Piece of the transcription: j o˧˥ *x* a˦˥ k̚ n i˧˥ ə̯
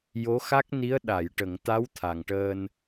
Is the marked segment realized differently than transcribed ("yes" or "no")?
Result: no